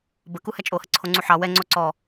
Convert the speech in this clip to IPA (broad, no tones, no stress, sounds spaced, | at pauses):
b ə k u h ɛ t͡ʃʼ o h ə ǀʰ o ŋ͡ǀ u ħ ɑ w ɛ ŋ͡ǀ o ǀ ɔ